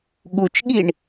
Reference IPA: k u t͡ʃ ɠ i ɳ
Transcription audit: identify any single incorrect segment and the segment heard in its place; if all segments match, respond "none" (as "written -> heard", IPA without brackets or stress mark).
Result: k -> ɠ